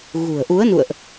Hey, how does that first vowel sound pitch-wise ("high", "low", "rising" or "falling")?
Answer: low